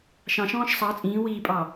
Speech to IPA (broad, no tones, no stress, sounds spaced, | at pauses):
ʃ ɑ̃ ʃ ɔ̃ː ʃ sˤ ɑ t͡sʼ ĩː w iː pʼ ɑ